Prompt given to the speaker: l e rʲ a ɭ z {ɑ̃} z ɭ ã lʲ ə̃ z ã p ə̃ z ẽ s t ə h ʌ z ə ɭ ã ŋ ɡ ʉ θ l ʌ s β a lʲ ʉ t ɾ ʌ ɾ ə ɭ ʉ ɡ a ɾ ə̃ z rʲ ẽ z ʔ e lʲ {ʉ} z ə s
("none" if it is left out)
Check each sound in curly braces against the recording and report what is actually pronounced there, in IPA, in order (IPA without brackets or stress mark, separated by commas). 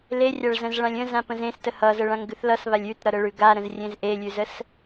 ə̃, ʉ